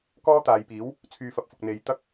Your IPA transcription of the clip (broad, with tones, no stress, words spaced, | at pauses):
kɔː˥t̪aː˨˧jpiː˨˥w | t͡sʰyː˨fɐ˨p̚fʊ˨k̚ n̪e˨˧j t̪ɐ˥k̚